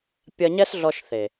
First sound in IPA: pʲ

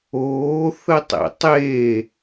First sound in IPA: oː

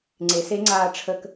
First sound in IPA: ŋ͡ǀ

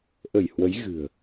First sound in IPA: ʔ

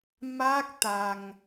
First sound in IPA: m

